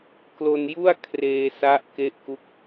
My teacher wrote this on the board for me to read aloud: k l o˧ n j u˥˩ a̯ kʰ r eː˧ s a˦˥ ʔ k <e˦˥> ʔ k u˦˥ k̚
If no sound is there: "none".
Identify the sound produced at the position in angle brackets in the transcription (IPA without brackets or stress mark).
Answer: e˦˥